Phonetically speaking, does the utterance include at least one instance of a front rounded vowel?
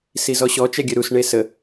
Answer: yes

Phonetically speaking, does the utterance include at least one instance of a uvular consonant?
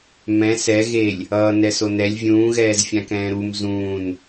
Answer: no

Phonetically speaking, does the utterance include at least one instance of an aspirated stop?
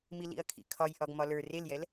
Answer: yes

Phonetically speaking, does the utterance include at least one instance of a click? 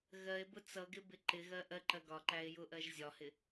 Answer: yes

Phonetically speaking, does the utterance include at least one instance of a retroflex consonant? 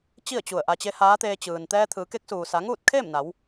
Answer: no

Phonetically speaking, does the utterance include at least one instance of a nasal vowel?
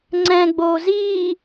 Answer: yes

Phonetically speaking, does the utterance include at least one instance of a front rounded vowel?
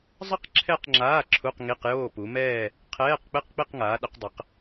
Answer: no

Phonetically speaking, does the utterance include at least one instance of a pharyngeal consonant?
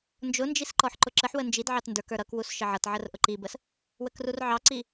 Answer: yes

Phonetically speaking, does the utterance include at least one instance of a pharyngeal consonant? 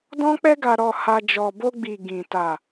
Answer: no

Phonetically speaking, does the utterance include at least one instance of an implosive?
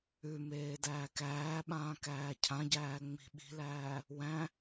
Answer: yes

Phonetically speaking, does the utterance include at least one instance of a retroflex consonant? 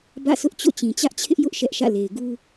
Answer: no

